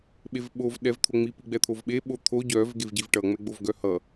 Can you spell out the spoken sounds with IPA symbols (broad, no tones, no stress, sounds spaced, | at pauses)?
ɓ e v ɓ o v ɗ ɛ v t̪ʰ o ŋ͡m i p i ɡ͡b ɛ t̪ʰ o v ɓ e ɓ o t̪ʰ o ɟ œ v ɡ e v ɟ i v ʈ ʌ ŋ͡m ɛ ɡ͡b o v ɡ œ h ʌ